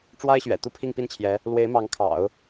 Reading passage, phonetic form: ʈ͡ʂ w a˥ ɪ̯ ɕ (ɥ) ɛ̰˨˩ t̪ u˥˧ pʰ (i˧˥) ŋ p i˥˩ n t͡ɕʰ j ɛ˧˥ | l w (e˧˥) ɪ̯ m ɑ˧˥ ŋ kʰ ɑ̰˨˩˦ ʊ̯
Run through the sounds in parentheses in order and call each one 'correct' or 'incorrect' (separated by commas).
correct, incorrect, correct